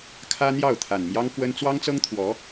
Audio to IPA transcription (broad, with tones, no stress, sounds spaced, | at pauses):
kʰ ä˥ n̪ j ɑ˥˩ ʊ̯ t̪ʰ a˨˩ n m j ɑ˥ ŋ k w ə˥ n t͡s w ɑ˥ ŋ t͡s ɤ˥ ŋ t̪ʰ w ɔ˧˥